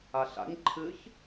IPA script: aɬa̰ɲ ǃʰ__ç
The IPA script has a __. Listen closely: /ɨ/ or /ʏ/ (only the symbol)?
ɨ